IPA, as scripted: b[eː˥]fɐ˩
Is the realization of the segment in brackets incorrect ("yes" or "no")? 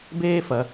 no